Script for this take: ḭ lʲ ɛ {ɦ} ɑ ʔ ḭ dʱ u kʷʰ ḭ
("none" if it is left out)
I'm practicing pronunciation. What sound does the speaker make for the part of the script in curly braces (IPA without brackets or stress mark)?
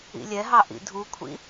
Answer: ɦ